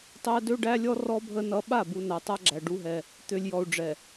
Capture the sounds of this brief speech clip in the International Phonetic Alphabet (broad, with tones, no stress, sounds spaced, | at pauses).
tˤ æ˦ d ø˦ ɖ æ˦ lʲ ɔ˦ r ɔ˦ bʱ ə˦ n ʌ˦ ɓ a˦˨ b u˨ n a˨ tˤ a˦ ɡ͡ǁ æ˨ ɖ u˦ ɦ ɛ˦ | t̪ ø˨ lʲ j ɔ˨ u̯ ɖ͡ʐ ɛ˨